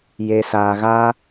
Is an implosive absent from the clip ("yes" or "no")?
yes